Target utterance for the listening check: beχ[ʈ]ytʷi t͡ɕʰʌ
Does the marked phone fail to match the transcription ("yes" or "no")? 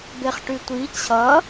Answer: no